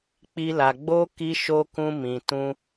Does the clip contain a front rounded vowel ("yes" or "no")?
no